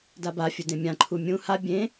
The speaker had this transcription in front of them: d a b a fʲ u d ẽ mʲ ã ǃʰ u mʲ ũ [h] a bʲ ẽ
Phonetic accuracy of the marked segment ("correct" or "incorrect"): correct